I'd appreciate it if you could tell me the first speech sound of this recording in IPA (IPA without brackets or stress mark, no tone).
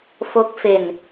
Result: f